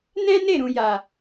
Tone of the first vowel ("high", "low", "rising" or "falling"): high